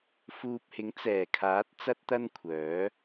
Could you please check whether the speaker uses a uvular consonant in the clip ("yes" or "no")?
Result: no